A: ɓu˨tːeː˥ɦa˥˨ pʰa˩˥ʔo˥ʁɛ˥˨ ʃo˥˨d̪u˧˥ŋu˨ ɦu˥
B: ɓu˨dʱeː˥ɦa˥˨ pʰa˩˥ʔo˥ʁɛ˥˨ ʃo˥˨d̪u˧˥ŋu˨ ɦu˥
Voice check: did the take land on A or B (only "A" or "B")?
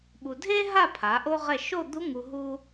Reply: B